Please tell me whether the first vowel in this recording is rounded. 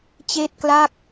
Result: no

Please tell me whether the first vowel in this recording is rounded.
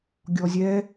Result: yes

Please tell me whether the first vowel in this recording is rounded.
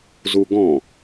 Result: yes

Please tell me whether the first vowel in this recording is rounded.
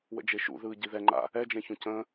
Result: no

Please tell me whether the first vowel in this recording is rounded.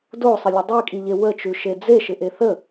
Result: yes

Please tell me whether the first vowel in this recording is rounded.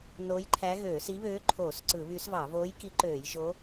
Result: yes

